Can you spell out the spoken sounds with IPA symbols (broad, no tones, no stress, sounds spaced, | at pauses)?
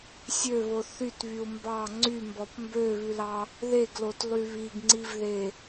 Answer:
sʲ ø β o θ y t β y u̯ m b ɑ ŋ͡ǀ y m b ɔ p m b ø β ʉ l ɑ | ð e ɡ l o t lˠ y β i ɡ ŋ͡ǀ i v ð e